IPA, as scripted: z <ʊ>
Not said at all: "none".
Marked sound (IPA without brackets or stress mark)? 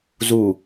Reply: u